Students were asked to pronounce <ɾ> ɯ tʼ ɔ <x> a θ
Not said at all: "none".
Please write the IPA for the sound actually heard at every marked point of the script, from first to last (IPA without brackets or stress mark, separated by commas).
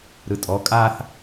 ɾ, kʼ